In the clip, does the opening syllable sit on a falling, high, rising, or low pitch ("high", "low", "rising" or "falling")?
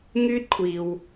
high